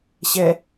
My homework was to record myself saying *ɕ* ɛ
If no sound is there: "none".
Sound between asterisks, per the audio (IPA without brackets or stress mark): ɕ